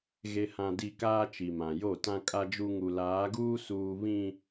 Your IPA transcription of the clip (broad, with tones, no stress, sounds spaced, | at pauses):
ɣ e˨ h ã˨ d i˨ k aː˦ t͡ʃ i˨ m ã˨ j o˦˨ t ã˨ kʼ a˨ d͡ʒ u˨ ŋ u˨ l aː˨˦ ɡ uː˦ s uː˨ β ĩ˨